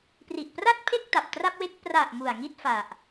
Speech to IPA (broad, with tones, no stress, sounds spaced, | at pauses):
p r i˨˩ ʔ p r a˥˩ t̚ pʰ e˥˩ k̚ t a˨˩ p̚ t r a˥˩ p̚ w e˥˩ k̚ p r a˨˩ ʔ m u˨˩ a̯ ŋ i˥˩ t̚ f a˨˩ ʔ